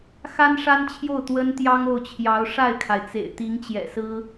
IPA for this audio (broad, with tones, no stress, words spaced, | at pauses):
xa˥nʂa˥nt͡ɕʰjo˥˩ʊ̯ t̪wə˥nt̪jɑ˥ŋo˥˩ʊ̯t͡ɕʰjɑ˧˥ʊ̯ ʂa˥˩ɪ̯kʰa˩ɪ̯t͡sḛ˨˩ɪ̯t̪i˧˥ŋ t͡ɕjɛ̰˨˩sɹ̩˥